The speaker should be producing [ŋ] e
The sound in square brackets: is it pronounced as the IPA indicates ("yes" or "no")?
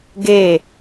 no